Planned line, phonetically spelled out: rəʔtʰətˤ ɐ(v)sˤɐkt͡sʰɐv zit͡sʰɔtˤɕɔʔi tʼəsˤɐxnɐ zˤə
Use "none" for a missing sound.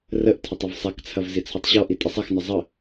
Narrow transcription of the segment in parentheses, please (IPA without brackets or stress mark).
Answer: v